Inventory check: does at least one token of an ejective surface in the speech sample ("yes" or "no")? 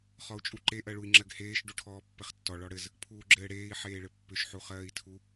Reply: yes